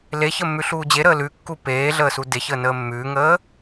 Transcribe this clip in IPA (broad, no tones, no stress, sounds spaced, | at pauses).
l e ç ə mː ʉ ɬ uː d͡ʑ e ɾ əː l ʉ kː u p eː ɮ əː s u d e ç əː n əː mː ʉː ŋ əː